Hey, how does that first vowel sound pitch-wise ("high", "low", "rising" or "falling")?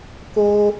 high